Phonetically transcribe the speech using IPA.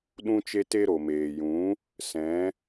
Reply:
ɗũ˦t͡ʃe˦te˦ ɾo˨meː˨jũ˨˦ | sɛ̃˨˦

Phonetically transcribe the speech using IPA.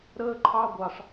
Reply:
ɾəː˥ǃʰɑ˥ɡʷɑ˧ʂ

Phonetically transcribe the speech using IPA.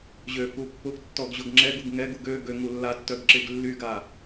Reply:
ʑøfu pːʊɡ tːɔɡʑʊɡŋ͡ǁɛɡuɡ ŋɛɡuɡ ø ɡø ŋulːatːœɡ ǁɪɡlːyɡa

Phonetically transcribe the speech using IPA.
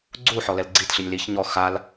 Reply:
ɡ͡ǀuħɔ lɛlɡ͡ǀitɬinʲ liç ɲɔ xal

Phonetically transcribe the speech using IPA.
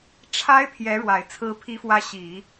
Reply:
ʈ͡ʂʰa˧˥ɪ̯ pʰjɛ˧˥ɻwa˨˩ɪ̯ t͡sʰɹ̩˧˥pʰi˧˥fwä˧˥ ɕi˨˩˦

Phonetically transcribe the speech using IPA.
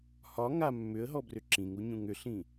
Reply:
hɒ ŋa mːʏə̯ɦɔbrʏ ǁĩŋuɲũŋ ʏɬĩ

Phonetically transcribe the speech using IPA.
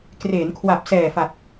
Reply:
kreː˩˦nkʰwa˨˩p̚sɛː˨˩fa˨˩t̚

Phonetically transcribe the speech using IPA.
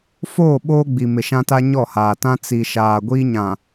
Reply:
foː˦˨ ɓoː˦ɡ͡bi˨ mɪ˨ʃã˦ta˦ ɲɔ˦˨haː˨tã˦ t͡si˨ʃaː˨ɡʷi˦ ɲã˨

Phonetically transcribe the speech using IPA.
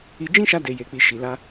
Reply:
i˧ d͡ʒĩ˦ʃa˧ de˨je˨k͡pi˨ ʃi˨la˧

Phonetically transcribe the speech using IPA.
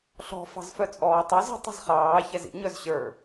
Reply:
ɬɔ̤ fɑ̤zfœt͡sʼɔːtˤoz ə̤ tˤə̤zχɑː çɛzḭ ɲœzɕə˞

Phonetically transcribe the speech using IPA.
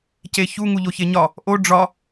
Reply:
ceçu ŋuʎoçeɲɒ | ʔo ɖ͡ʐɒ

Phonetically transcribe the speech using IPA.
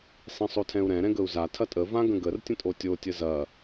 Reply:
sˤĩsˤotʰɛ̃u̯ɾɛ̃ ɾɛ̃ɡəu̯za tʰɐtʼə vãɡə̃ɡər tʲə̃tʼotʲo tʲəzɐ

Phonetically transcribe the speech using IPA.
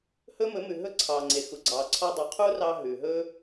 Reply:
hɵ˦mɵ˨˦mʉ˨ ɦɵ˦ ǀʰɑː˨ŋ͡ǀe˨ xu˨ɡ͡ǀɑː˨ ǀʰɔ˧dˤu˨ qʰu˦rɑ˧ ɦʉ˨ ɦɵː˦

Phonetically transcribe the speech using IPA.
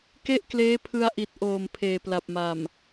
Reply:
ke˥˩ʔkleː˦˥pʰɯ˧a̯ʔi˨˩t̚ ʔoː˨˩mpʰeː˨˩pla˨˩p̚ma˨˩m

